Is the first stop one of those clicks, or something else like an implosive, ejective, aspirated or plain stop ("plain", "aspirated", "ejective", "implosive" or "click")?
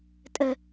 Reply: ejective